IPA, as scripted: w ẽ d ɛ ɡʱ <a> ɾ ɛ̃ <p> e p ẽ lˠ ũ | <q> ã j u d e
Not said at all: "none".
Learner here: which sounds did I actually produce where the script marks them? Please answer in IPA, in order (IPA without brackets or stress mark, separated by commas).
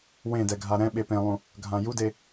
a, ɓ, ɡʱ